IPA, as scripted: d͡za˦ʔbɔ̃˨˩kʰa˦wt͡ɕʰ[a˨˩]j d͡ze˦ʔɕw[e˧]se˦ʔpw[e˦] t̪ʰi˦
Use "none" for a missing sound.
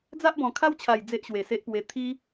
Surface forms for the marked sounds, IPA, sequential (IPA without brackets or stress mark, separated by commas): a˨˩, e˨˩, e˧